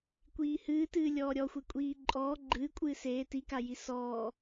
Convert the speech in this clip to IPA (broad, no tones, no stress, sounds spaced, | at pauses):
kʷ iː h ɨː t ɨː lʲ ɔː ɾʲ ɔ xʷ e kʷʼ iː ǃʼ ɔː ɡ͡ǃ ɨː kʷʼ ɨː s eː t i k a j i s ɔː